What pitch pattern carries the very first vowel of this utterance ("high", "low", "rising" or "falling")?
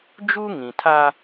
high